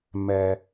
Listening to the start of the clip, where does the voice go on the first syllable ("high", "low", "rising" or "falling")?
low